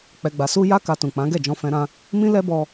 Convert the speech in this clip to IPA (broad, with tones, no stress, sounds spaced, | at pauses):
k͡p ɛ˧ ɡ͡b a˧ s u˦ j a˦ k a˧ t ũ˨ k͡p ã˨˦ ɡ ɛ˦˨ d͡ʒ ɔ̃˧ f ɛ̃˧ ɾ ã˧ | m ĩ˦ l ɛ˦ b ɔ˧